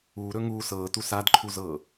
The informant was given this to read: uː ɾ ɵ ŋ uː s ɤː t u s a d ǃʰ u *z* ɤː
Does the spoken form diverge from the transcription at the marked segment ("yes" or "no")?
no